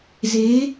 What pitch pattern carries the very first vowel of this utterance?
rising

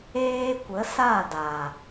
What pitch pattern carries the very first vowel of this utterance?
high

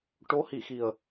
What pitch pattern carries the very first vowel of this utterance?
rising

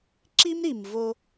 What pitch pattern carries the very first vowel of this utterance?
high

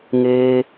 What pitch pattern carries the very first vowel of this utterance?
high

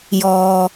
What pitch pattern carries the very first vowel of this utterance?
low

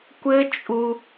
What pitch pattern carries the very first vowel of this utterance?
high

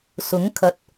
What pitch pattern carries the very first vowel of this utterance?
rising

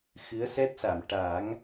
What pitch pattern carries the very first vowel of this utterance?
rising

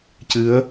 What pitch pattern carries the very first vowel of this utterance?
rising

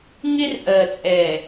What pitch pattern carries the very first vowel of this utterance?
high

